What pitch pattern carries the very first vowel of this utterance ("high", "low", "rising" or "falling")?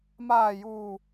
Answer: low